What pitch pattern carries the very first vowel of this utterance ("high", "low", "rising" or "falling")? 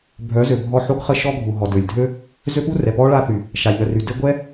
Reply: rising